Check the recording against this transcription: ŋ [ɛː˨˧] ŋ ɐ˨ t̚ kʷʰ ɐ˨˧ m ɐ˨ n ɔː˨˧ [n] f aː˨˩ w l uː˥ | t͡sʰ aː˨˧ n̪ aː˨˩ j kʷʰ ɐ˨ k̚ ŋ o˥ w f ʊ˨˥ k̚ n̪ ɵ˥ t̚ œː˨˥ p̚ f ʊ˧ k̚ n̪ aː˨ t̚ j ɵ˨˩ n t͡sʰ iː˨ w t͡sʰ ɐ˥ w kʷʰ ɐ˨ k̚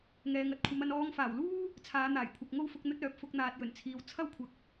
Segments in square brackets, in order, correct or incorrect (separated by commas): incorrect, incorrect